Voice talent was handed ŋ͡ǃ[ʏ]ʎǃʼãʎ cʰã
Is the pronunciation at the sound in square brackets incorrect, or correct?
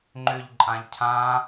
correct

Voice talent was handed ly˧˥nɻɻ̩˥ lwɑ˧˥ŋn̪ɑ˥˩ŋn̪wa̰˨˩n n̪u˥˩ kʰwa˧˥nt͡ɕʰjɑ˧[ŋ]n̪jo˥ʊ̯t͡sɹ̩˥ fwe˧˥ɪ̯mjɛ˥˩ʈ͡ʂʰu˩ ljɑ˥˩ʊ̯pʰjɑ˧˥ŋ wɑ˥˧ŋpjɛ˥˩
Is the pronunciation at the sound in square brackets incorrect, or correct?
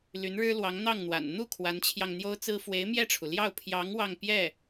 correct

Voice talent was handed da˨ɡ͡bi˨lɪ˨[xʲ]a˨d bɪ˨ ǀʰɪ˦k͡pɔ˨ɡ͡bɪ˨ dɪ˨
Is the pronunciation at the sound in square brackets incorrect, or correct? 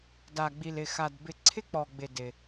incorrect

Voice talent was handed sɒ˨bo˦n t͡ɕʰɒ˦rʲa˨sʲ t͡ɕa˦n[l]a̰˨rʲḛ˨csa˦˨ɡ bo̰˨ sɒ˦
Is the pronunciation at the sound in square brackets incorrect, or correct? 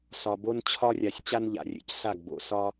incorrect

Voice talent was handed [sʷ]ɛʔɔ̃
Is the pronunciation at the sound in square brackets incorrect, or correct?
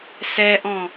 incorrect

